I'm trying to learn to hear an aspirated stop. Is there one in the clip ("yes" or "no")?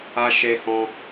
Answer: no